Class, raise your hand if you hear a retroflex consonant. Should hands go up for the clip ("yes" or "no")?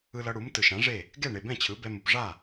yes